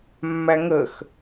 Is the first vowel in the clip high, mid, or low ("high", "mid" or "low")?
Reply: low